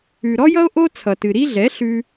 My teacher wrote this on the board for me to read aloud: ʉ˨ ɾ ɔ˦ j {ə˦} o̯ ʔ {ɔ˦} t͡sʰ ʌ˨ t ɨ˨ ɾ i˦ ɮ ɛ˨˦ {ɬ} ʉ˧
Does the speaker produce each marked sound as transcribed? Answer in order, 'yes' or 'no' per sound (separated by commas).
no, no, yes